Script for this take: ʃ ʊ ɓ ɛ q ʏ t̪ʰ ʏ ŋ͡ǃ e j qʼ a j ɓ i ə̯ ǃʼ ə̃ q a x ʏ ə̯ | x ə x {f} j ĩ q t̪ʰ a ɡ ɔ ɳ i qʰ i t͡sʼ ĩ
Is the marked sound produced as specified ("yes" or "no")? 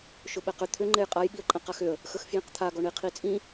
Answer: yes